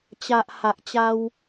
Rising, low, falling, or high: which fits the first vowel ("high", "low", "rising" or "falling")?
low